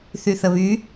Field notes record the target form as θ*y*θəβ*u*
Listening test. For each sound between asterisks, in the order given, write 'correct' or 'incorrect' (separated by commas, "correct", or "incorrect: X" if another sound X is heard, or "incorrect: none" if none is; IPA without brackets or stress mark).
correct, incorrect: y